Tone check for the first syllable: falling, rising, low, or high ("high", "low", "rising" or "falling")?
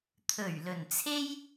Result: low